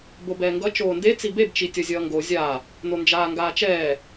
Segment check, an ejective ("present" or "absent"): absent